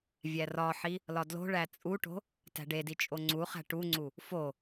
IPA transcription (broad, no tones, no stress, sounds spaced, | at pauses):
vʲ æ r ɒ ħ i | l ɒ d l o̤ ɭ æ t͡sʼ u ʈ o̤ | t æ̤ ɖ e d i t͡ʃʼ o ŋ͡ǀ u χ æ̤ ʈ u ŋ͡ǀ u | f o